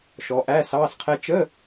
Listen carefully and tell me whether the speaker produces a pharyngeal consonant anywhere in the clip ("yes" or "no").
no